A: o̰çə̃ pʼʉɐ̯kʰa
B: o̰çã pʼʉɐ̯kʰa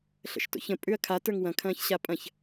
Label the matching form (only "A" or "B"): A